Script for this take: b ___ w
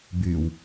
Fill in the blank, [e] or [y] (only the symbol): y